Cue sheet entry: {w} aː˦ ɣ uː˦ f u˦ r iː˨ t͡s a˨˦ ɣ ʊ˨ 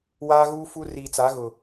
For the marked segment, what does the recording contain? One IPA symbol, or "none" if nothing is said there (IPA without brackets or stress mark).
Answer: w